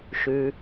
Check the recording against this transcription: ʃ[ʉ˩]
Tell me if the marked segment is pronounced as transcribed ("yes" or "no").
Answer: yes